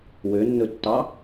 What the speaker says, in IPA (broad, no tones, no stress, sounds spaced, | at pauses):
w ø nː ɵ tː ɑ